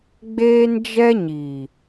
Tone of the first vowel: high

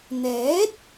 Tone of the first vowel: rising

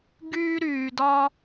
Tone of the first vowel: high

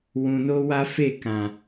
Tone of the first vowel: low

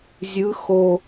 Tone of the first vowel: rising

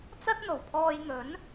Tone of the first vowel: high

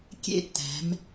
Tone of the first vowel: high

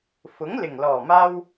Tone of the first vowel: rising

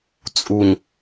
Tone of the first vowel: low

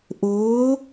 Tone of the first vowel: rising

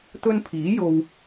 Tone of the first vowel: high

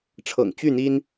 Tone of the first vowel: low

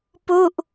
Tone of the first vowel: falling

